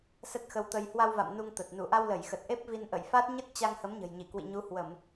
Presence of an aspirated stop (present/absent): absent